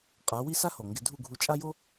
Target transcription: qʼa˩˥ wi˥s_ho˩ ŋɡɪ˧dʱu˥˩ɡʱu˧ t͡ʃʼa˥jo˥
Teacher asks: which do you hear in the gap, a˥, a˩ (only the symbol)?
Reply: a˥